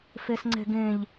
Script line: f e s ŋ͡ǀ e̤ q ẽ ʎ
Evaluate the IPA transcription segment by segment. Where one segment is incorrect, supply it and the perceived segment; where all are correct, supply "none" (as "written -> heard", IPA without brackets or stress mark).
q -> ɡ